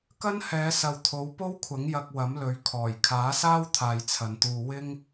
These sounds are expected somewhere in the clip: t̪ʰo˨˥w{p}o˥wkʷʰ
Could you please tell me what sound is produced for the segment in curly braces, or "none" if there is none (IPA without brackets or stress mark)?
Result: p